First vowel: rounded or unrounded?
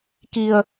unrounded